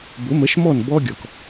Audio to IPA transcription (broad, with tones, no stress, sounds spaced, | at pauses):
b ʊ˩˥ m ə˩˥ ʃ m ɔ˥˩ n b ɔ˧ ɡʲ ɔ˩ k